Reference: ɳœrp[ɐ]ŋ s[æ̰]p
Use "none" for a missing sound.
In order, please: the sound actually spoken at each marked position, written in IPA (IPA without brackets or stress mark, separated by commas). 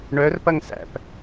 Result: ɐ, æ̰